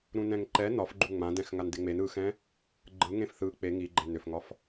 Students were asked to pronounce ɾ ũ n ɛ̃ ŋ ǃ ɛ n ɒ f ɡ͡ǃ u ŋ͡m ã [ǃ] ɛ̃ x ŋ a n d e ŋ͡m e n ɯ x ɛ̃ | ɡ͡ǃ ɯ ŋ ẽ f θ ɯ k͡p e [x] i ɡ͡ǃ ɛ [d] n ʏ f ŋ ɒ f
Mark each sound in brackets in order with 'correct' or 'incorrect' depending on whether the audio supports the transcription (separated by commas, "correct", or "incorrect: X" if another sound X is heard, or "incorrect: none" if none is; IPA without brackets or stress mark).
incorrect: d, incorrect: ŋ, incorrect: none